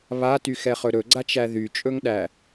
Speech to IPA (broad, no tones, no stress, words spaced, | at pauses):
βatyxɛχɵ ɾɵɡ͡ǀat͡ʃæ ðyt͡ʃʼɵŋɗæ